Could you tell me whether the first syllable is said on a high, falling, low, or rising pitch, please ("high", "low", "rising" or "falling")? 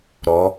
rising